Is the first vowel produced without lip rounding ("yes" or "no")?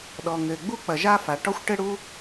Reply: no